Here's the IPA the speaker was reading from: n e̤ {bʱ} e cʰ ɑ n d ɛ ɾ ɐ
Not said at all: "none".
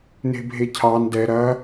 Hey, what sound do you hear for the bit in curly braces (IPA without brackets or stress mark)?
bʱ